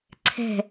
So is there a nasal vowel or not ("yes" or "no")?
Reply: no